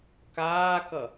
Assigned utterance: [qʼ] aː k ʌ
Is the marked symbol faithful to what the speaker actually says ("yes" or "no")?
no